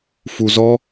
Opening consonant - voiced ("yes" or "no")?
no